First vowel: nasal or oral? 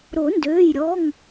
oral